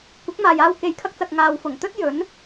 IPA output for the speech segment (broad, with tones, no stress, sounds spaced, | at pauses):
kʷ ɪ˨˥ k̚ m aː˨ j aː˧ w k e˨ j kʰ ɐ˧ k̚ t͡s ɐ˨ k̚ ŋ aː˨ w f ʊ˨˩ ŋ t̪ ɵ˥ t̚ j ɵ˨˥ n